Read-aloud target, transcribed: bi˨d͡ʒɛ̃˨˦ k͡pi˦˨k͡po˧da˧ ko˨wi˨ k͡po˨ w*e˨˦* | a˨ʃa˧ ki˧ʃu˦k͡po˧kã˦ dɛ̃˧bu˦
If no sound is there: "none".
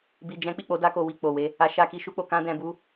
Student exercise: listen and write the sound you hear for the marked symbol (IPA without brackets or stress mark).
e˨˦